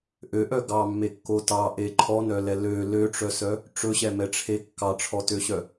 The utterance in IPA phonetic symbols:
ʔ ø ʔ œ ɡ ɑ mː e kː o t ɑ ʔ e ǃʰ ɔ n œ l ɛ l ø l ø ʈ͡ʂ œ s œ | ʈ͡ʂ ɵ ɕ ɛ m ɛ ʈ͡ʂʰ e kː ɑ ʈ͡ʂʰ ɔ t ø ɕ œ

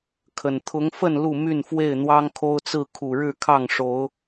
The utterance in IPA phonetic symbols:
kʰ ə˨˩ n t̪ʰ ʊ˨˦ ŋ f ə˥˨ n l u˥˨ m y˥˨ n f w e˥˨ ɪ̯ n̪ w ɑ˦ ŋ kʰ o˦ ʊ̯ t͡s ɹ̩˥˨ kʰ u˨˩ ɻ ɻ̩˥˨ kʰ ɑ˥˨ ŋ ʂ o˨˦ ʊ̯

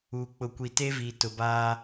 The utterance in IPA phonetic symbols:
uː˨ k͡p ʊ˨ kʷ i˨ t e˦ v iː˨ t ʊ˨ b aː˦

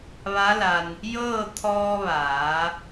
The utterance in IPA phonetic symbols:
ʋ a˧˥ l a˧ n | j ɤː˥˨ t̪ʰ ɔː˧ ʋ aː˩˧

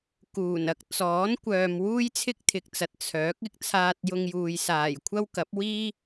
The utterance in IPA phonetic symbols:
k uː˨˩ n ɐ˧ k̚ t͡s ɔː˨˥ n kʷ œː˨ m w uː˥ j t͡sʰ ɪ˥ k̚ t̪ʰ ɪ˨ k̚ t͡s ɐ˨ t̚ t͡sʰ œː˨˥ k̚ ɪ˥ k̚ t͡sʰ aː˧ t̚ j ʊ˧ ŋ j uː˨ j s aː˨˩ j kʷʰ ɐ˥ w k ɐ˨˥ p̚ w iː˥

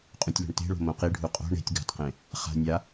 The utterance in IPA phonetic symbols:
qʼ ũ tʲ l o̤ ɳ t e̤ ɭ o̤ m õ q i ɖʱ u qʼ o̤ ɳ e̤ tʲ ɡ a̤ t q ẽ | χ a̤ nʲ a

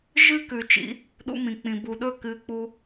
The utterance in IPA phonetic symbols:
ʒ ɨ˦ k ʉ˨ t͡ʃ ḭ˧ | ɗ ṵ˧ m ĩ˨ k͡p ĩ˨ b u˨ ɗ ɵ˦˨ k ɨː˧ k͡p u˦

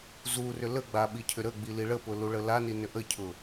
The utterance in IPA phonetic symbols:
z u r ʏ l ə ɡ͡b a ɓ i cʰ ʏ ɾ ə ɡ͡b i l i ɭ ə p ʊ l u ɭ ə l a n i n ʏ ʔ ə cʰ ʊ

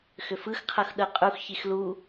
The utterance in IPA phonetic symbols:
x ʏ f ɯ x qʰ ɤ x ɗ ɤ qʼ u x ç i x l u

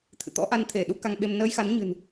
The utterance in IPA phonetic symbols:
t̪ʰ ɨ̰˧˨ t̪ ɔ̰˧˥ ʔ a˧ n t̪ʰ e˧˩ ɗ u˨˦ k a˧ ŋ ɓ e˧ m n əː˧ j x a˨˦ n ɲ ɨ̤˨˩ n

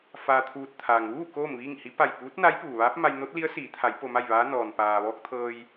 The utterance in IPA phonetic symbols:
f aː˧ t̪ʰ uː˧ t̚ t̪ʰ aː˩ ŋ ʋ uː˥˨ k oː˥˨ m ʋ iː˥˨ ŋ h i˧˥ p a˧˩ j p uː˧˥ t̚ n a˧˥ j p uː˩ ʋ aː˧˥ p̚ m a˧ j n o˧˥ t̚ l i˧˥ ə̯ s iː˩˧ t̪ʰ a˩˧ j p o˧ m a˥˨ j ʋ aː˧˥ n ɔː˩ n p aː˩ ʋ ɔː˧ k̚ t̪ʰ ɤː˧ j

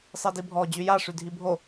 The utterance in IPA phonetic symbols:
sˤ i d i bʱ ɔ d͡ʑ y j a ʂ y dʱ i bʱ o

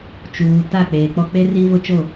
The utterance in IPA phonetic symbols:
t͡ʃ uː˨ t a˦˨ k͡p eː˨ k͡p ɔ˦ k͡p e˦ r i˦ v ʊ˦ t͡ʃ o˦˨

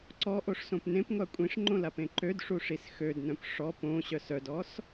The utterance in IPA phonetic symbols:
ǀ ɔ ʔ o ʂ s õ p n ẽ p ŋʷ a kʷʼ ĩ ʂ ŋ͡ǃ õ l a p ẽ ǃ ø d ʂ u ʂ i s x ø d n œ̃ p ʂ ɔ p õ ɕ œ s œ d ɔ s

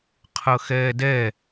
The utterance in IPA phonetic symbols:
qʰ ɤ x ɛː d ɛ

